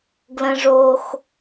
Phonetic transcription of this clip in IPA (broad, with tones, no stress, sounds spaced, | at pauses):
ɡ l ə̃˦ ʐ o˦ x